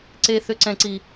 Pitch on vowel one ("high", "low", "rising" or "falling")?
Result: high